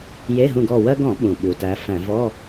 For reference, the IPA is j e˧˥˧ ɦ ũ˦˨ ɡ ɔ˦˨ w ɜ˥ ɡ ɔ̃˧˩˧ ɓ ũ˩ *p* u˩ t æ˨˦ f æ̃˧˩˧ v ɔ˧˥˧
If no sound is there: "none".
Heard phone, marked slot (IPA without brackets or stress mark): ɓ